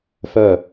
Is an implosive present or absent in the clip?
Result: absent